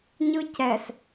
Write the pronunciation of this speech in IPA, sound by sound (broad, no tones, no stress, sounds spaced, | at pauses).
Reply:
ɲ ɯ c ɛ s